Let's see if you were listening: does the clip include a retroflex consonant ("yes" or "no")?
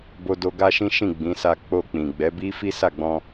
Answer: no